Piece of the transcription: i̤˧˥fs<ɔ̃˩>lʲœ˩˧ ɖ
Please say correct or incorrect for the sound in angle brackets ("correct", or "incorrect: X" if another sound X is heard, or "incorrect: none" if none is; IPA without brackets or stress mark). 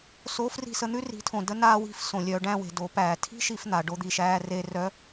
incorrect: õ˩